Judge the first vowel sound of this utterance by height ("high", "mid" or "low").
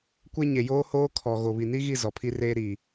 mid